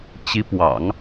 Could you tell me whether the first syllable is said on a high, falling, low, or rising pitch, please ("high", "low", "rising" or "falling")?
rising